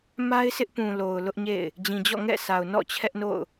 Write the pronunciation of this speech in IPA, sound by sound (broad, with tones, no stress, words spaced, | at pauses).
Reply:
ma˦ɪ̯sʰɪ˦ʔpũ˨lo˨ʊ̯ lʊ˦ʔɲḛ˦˨ɪ̯ | d͡ʑĩ˨d͡ʑɔ̰˦˨ŋɛ̰˦˨sʰa˨ʊ̯ nɔ̰˦˨t͡ɕʰɛ˦ʔno̰˦˨ʊ̯